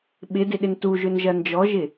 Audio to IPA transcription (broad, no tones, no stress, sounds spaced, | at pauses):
ɓ ɪ d ɪ ɗ ɪ n t u ʒ ø n ʒ ɐ n d͡ʒ ɔ ʒ ɪ